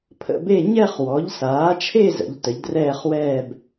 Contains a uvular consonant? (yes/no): yes